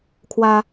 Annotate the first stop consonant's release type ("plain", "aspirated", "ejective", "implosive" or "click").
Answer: aspirated